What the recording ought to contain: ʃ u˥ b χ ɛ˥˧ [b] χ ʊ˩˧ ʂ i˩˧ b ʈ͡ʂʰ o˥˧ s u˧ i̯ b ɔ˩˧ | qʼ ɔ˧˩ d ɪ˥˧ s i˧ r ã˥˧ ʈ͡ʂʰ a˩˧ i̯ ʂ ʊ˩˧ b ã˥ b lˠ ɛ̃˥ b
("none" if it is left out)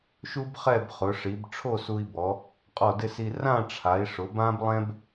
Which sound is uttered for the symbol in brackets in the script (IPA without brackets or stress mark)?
b